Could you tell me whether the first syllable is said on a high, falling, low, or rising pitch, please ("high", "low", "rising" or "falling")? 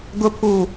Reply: low